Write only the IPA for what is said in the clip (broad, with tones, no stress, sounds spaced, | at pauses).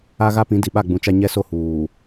a˦ ɣ a˦ p ĩ˨˦ d i˨ ɓ a˦˨ ɡ͡b ũ˨ t͡ʃ a˦ ɲ ɛ˦ s o˦ h uː˨